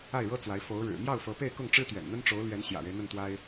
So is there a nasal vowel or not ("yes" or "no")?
no